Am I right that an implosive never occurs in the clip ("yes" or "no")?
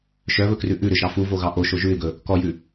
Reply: yes